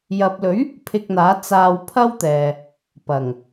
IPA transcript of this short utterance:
j ɐ˨ p̚ l ɵ˨˥ ɥ | pʰ ɪ˧ k̚ n̪ aː˨˥ t͡s aː˧ w pʰ ɐ˥ w t̪ ɛː˨ | p ɐ˨˩ ŋ

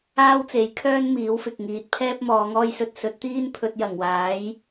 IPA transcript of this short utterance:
aː˥ w t͡s e˨˥ j kʰ œː˥ n m iː˨˥ w f ɪ˨ k̚ ŋ iː˨˥ t̚ pʰ ɛː˥ p̚ m ɔː˨˧ ŋ ɔː˥ j s ɵ˧ t̚ s ɵ˨˥ t̚ t̪ iː˥ n pʰ ɵ˧ t̚ j ɐ˨˩ ŋ w aː˨˥ j

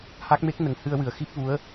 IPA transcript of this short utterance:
h a˦˥ k̚ m e˦˥ k̚ n ə˨˩ ŋ h ɨ˧ ə̯ w ɨ˨˩˦ ə̯ x i˦˥ p̚ v u˧˥ ə̯

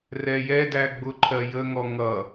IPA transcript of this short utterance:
r ɛ j ɛ d æ ɡ͡b ʊ ǃʰ ɜ j ə ŋ ɔ ŋ ʌ

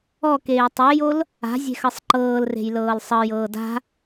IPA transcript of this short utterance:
ɔ k eː tˤ e j o l | a̤ zʲ e̤ x ɤ sˤ ǃ ɤː l r e̤ j l ɤː l sˤ ɤ j ɤː d a̤

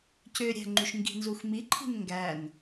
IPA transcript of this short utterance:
c ø ɾʲ æ̤ ŋ͡ǃ y ʃ ŋ ɡ i̤ n z u x m i ǃʰ i̤ n ŋ ɡ æ n

